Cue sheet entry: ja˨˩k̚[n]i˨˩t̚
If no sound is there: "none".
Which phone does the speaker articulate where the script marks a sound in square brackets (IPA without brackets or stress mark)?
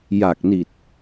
n